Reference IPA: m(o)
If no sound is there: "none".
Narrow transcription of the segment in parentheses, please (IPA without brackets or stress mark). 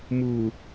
u